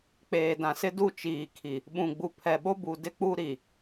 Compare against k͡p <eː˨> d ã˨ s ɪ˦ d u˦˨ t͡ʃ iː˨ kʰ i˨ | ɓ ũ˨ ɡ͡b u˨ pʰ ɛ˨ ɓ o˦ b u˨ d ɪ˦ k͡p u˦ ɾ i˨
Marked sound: correct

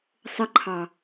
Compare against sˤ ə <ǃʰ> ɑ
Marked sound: correct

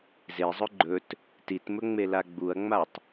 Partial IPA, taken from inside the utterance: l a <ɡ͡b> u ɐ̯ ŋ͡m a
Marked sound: correct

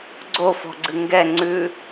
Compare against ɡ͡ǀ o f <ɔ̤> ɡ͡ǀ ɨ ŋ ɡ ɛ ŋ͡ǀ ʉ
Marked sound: correct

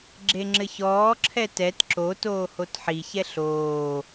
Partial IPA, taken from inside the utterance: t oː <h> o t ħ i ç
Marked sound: correct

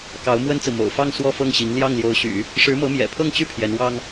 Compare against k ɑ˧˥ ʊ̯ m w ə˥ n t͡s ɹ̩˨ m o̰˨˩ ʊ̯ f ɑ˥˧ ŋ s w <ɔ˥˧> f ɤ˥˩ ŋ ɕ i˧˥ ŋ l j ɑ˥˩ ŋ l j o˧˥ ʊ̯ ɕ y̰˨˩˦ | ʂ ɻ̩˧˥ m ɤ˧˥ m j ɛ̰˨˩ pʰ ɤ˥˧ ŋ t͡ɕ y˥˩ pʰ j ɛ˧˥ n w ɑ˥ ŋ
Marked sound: correct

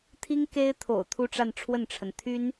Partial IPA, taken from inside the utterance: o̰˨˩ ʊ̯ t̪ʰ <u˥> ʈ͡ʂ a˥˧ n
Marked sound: incorrect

